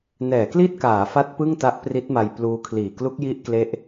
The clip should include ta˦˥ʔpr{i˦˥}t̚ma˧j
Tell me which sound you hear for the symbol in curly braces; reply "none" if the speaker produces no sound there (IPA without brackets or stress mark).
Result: i˦˥